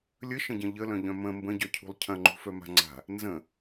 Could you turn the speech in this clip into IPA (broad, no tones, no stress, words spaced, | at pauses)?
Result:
lʲəʃə̃ɟɐ̃ ʎəlœ̃ʎœ̃ mə̃ mbə̃ɟœcʰṳlˠ cʰɐ̃ŋ͡ǃṳfœma̤ ŋ͡ǀa̤ | nzə̃